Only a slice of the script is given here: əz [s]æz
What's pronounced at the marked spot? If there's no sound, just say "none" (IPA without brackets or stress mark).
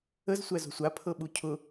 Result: sʷ